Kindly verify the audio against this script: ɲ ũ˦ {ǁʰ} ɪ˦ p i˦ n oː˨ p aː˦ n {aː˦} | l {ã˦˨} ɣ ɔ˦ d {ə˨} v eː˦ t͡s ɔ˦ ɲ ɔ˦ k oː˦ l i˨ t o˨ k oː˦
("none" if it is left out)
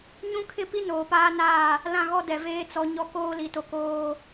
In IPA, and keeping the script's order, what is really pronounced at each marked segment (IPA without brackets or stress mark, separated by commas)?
kʰ, aː˦˨, ã˦˨, ɛ˨